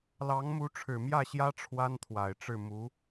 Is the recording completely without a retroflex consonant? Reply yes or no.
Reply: no